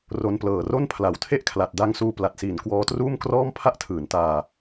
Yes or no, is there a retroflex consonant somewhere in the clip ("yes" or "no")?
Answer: no